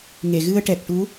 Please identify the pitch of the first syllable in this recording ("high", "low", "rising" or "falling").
low